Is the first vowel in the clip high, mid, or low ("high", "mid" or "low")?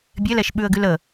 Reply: mid